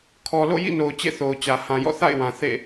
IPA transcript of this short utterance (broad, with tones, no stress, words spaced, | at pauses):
kʰɔ˨lo̰˦˨jḭ˦˨no˨ʊ̯ t͡ɕḛ˦˨θo˨ʊ̯t͡ɕä˨ hã˨jɔ̰˦˨θa̰˦˨ɪ̯wã˨ θḛ˦˨